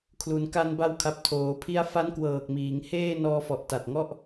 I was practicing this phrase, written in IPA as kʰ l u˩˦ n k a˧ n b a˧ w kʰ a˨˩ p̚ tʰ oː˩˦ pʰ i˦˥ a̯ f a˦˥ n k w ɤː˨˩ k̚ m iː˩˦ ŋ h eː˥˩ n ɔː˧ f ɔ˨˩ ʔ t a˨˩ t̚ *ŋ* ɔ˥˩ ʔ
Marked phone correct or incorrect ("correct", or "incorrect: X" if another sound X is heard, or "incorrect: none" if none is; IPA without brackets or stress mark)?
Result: correct